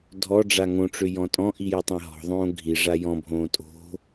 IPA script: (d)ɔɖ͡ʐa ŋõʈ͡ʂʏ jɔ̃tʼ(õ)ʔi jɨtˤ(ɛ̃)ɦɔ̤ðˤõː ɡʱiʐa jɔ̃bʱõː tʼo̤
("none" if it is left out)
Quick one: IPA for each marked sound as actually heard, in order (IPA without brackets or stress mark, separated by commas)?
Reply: dʱ, ɔ̃, ɛ̃